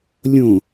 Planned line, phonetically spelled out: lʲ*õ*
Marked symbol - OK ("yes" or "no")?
yes